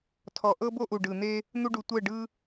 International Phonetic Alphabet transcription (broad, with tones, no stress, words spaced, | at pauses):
tʰɔ˨ʔɤ˦bo˦ ʔu˨ɖɯ˨n̪e˦ | n̪u˧ɖu˨ tʷɛ˦˨ɖɯ˦